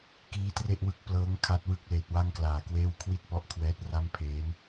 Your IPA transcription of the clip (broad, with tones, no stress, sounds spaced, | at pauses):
k iː˦˥ t r e˥˩ ʔ w ɯ˦˥ k̚ p l ɤː˦˥ ŋ kʰ a˦˥ t̚ w ɯ˦˥ k̚ l eː˨˩ t̚ w a˥˩ ŋ k l aː˨˩ k w eː˥˩ w kʰ w i˥˩ t̚ p ɔ˦˥ ʔ kʰ w ɛː˦˥ t̚ r a˥˩ m pʰ eː˦˥ n